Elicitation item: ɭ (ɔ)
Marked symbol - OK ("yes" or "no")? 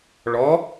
yes